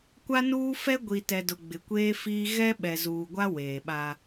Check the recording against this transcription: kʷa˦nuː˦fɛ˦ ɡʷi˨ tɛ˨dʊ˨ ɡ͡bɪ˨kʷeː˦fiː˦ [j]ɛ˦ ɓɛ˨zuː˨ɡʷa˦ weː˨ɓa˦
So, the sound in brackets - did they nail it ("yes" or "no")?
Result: no